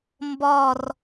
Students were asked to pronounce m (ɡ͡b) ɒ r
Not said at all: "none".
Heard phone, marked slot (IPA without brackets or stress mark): b